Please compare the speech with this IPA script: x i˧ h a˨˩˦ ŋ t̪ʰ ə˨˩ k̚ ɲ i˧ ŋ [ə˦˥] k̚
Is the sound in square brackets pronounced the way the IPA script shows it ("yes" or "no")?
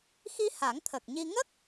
yes